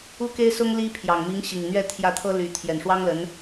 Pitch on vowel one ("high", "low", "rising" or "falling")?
high